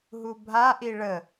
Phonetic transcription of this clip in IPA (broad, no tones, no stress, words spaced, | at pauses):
ɦubʱaʔi ɭə